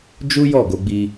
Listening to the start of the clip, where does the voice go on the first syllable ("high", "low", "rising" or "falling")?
high